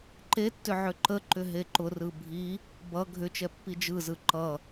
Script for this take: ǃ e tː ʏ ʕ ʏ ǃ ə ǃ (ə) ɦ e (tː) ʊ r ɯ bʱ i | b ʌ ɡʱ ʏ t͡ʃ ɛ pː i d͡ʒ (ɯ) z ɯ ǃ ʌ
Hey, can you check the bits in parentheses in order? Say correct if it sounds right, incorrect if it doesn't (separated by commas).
incorrect, incorrect, correct